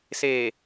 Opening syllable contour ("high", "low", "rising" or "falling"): low